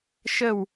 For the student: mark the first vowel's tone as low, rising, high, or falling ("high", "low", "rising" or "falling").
falling